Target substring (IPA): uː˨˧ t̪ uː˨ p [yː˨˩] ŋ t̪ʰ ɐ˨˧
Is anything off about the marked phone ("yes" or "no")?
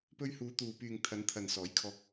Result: yes